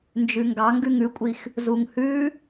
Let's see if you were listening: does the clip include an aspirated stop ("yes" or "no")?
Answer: no